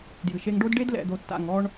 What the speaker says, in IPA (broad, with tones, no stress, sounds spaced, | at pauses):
d j ɨ˨ ʃ e˦ ŋ ɖ o˦ d ɖ e˦ d l ɛ̰˨ d̪ o˨ tː a̰˨ ŋ ɔ˦ ɳ